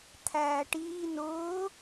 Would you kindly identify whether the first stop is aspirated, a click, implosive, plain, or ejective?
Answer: aspirated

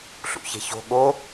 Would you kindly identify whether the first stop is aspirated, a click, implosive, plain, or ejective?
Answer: implosive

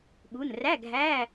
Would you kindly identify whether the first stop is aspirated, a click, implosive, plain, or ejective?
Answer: implosive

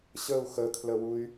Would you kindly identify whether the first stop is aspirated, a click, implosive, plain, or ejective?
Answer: aspirated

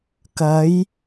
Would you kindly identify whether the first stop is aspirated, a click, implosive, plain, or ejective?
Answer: plain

